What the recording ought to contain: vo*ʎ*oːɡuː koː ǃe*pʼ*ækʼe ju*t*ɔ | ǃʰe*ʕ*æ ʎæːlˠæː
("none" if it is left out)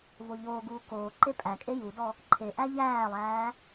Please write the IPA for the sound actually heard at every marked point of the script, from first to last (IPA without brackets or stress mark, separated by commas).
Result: ʎ, pʼ, d, ʔ